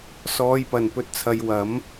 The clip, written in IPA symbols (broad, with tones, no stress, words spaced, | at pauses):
sɔː˨˧jpɐ˨˩n pɵ˧t̚t͡sʰɐ˨˧jwɐ˨˥m